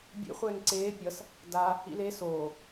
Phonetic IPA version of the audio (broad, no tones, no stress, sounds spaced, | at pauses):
bʲ ḛ χʷ ɛː ŋ ǀ eː pʲ ʌ s | d a | ḭ l e s oː